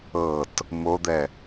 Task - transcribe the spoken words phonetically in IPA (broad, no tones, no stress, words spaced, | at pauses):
ɤt | mod̪ɛ